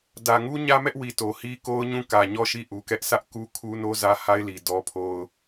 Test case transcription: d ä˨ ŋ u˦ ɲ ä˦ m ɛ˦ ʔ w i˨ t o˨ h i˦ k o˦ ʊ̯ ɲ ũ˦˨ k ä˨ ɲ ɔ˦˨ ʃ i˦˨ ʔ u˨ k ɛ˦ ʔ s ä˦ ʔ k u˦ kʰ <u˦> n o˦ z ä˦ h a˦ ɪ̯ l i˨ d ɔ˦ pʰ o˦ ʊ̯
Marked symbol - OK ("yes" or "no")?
yes